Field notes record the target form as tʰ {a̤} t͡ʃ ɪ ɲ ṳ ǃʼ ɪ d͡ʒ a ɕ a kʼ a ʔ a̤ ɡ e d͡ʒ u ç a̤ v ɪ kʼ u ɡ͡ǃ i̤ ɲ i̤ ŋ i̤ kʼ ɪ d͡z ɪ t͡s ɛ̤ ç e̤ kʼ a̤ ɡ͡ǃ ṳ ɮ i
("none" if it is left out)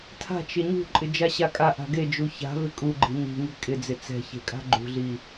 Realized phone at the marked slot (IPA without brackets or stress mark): a̤